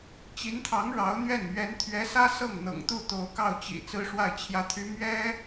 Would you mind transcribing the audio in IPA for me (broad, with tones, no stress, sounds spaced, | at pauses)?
t͡ɕ i˧˥ n t̪ʰ ɑ˧˥ ŋ ɻ ɑ˧˥ ʊ̯ n̪ ɥ ɛ˥˩ n m ɥ ɛ˧˥ n t̪ʰ ɥ ɛ˧˥ s ä˥ s ɤ˥˩ ŋ n̪ ɤ̰˨˩ ŋ t̪ u˥˩ t̪ o˧˥ ʊ̯ k ɑ˥˩ ʊ̯ t͡ɕ ḭ˨˩ t͡s ɹ̩˥ ʂ w a˥˩ ɪ̯ t͡ɕʰ j ä˥ t̪ʰ y˥ m ɥ ɛ˥